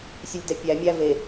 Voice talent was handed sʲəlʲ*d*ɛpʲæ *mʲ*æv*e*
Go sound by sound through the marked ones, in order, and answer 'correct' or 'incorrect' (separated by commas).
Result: correct, correct, correct